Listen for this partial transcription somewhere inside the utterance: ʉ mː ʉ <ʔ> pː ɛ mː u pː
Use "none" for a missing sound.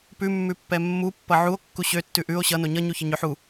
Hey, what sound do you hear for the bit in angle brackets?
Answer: none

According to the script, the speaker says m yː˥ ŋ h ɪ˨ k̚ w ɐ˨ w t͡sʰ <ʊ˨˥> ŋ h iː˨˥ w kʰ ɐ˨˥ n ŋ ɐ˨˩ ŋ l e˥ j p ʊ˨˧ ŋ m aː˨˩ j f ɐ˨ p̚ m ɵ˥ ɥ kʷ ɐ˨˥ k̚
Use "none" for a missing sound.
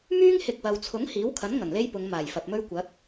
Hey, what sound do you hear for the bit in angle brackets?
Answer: ʊ˨˥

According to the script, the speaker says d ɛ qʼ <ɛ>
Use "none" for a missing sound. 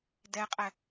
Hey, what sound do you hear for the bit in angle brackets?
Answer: ɛ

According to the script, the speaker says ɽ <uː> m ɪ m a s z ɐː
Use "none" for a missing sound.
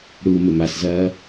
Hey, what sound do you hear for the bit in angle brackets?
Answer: uː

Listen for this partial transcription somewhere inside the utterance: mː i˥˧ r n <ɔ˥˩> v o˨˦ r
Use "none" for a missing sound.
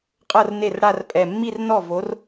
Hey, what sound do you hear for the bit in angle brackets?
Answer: ɔ˥˩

